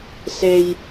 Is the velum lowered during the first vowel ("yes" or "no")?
no